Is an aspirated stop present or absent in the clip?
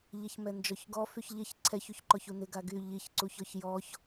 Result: present